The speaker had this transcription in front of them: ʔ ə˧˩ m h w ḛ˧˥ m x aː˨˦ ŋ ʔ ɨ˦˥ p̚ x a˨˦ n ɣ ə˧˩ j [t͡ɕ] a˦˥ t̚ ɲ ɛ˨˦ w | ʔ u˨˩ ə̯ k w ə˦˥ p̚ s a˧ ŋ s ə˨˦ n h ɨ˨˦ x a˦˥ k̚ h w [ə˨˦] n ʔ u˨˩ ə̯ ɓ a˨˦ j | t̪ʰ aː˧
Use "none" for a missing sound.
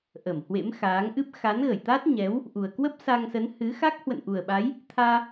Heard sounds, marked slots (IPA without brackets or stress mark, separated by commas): t̪, ə̰˧˨